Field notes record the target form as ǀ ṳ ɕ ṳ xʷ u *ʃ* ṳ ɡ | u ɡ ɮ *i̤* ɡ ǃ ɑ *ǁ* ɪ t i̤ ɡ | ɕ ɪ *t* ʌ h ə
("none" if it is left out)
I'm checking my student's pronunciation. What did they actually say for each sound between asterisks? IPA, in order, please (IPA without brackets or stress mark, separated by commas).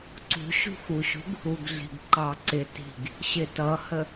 ɕ, i̤, ǀ, t